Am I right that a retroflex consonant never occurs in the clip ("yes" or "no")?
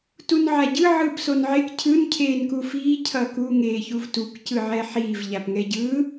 yes